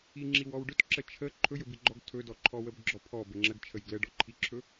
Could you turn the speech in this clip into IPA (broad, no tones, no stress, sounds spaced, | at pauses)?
i ŋ͡ǁ i w ɔ w ɖ ɵ t ǁ ə t͡ʃʰ ə ǃʰ ɵ j ɵ b i ɡ͡ǃ ɔ ɡ tʰ ɵ d ɔ ǃʰ ɔ w ə b ɡ͡ǁ ɔ pʰ ɔ b ə ŋ͡ǁ ə ɡ t͡ʃʰ ə j ɡ l ə ɖ ɔ ǃʰ i ǁʰ ɵ